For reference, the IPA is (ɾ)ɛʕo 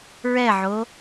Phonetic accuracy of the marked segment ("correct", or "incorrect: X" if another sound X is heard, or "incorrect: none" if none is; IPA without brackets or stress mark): incorrect: ɹ